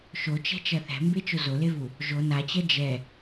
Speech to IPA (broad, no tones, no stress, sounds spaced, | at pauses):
ʃ o t͡ʃ ɛ̤ t͡ʃ ɐ θ ɛ̤ m b e t͡ʃ o z o l e v u | ʒ o n a t͡ɕ ɐ d͡ʒ ɛ